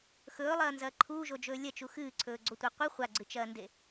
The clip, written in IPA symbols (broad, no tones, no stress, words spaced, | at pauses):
xɵːlˠɐːnzɐː ǃʰuːʒod͡ʒɵː lʲɐt͡ʃu xɨːǀʰɵːɡ͡ǀotʷe qʷɨ χʷaɡ͡ǀɨt͡ʃɐːnde